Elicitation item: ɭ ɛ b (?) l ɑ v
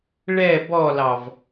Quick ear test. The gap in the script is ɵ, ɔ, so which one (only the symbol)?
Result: ɔ